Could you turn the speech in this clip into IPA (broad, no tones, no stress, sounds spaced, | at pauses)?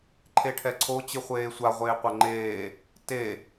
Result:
ǃʰ e ʈʰ ɛ ǀʰ o t͡ɕ ɯ χʷ eː sʷ a ʁʷ eː qʷ ɛ ŋ͡ǃ eː | t e